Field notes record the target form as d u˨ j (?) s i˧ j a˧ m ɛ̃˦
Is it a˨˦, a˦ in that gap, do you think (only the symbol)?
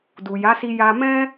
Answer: a˨˦